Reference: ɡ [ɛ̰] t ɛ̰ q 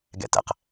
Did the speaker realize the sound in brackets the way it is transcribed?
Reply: yes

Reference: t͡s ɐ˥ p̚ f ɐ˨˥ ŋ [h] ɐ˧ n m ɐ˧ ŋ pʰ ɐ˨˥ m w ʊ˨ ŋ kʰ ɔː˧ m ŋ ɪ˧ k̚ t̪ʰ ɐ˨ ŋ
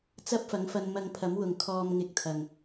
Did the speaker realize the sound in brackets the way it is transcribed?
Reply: no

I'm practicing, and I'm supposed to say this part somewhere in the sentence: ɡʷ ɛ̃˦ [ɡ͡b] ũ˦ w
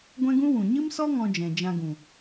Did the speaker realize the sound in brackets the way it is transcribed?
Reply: no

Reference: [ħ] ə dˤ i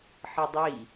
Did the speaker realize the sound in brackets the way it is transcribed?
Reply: yes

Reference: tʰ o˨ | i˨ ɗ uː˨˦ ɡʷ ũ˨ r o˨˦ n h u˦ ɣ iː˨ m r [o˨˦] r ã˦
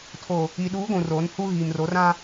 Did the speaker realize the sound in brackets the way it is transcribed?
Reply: yes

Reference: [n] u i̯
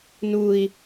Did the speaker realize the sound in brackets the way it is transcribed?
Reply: yes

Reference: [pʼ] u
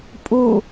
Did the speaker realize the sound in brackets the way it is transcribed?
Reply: yes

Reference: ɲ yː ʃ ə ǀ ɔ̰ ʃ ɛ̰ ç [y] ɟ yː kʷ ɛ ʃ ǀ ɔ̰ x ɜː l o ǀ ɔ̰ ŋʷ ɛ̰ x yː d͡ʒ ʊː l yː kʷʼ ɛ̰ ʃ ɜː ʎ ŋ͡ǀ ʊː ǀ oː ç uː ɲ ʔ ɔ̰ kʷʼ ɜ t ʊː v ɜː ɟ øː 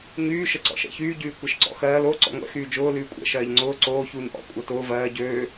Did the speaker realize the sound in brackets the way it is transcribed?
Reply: no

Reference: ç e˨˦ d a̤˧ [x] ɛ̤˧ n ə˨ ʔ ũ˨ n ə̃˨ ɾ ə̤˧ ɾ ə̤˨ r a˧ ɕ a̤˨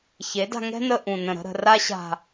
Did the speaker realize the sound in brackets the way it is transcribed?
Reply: no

